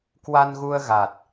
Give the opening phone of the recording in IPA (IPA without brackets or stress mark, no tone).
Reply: k